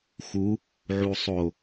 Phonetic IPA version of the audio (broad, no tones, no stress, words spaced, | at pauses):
xu | ʕusˤo